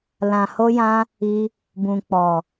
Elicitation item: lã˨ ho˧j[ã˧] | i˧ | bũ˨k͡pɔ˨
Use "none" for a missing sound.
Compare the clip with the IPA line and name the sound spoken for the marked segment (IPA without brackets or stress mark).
ã˧